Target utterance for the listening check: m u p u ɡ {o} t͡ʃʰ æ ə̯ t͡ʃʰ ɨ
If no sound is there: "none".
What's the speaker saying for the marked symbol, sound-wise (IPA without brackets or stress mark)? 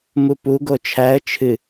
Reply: o